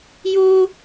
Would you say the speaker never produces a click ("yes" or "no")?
yes